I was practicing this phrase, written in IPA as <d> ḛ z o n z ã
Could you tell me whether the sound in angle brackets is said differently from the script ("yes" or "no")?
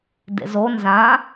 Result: no